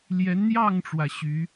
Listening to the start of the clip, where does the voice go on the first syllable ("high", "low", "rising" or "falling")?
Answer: rising